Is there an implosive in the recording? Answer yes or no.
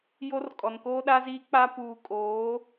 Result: yes